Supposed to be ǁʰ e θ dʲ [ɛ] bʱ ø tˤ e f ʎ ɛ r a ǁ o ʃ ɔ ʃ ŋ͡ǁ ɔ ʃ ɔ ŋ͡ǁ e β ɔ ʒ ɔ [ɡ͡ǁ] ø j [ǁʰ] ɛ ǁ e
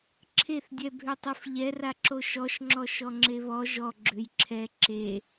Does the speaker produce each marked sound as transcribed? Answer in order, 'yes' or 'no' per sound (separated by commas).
yes, yes, yes